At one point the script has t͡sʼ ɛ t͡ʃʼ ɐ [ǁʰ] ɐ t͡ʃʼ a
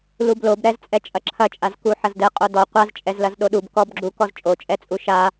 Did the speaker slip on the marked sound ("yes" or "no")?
no